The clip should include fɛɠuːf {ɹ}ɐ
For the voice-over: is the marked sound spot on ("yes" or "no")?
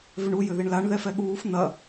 no